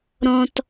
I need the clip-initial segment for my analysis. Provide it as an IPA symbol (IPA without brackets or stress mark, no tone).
ɾ